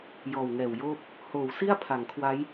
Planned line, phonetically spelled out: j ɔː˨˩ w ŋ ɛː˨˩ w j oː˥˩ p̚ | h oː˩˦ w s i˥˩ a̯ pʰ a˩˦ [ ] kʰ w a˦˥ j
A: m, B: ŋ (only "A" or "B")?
B